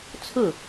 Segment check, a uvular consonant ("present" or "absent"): absent